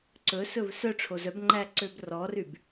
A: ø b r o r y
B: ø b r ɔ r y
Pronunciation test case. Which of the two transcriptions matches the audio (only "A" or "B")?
B